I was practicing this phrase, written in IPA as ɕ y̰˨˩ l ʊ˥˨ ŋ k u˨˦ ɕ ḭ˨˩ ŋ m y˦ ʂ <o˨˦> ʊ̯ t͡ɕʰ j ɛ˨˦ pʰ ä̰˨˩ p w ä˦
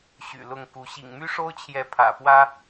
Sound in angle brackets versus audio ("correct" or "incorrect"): incorrect